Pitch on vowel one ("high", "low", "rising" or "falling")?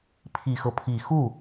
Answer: low